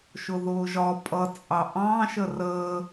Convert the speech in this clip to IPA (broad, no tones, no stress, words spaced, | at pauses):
ʃʊðʊːʒɒ pʼʌt͡sʼɑ ʔɑ̃ ʃərəː